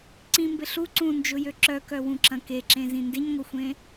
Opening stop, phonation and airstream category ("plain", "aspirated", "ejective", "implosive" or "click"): click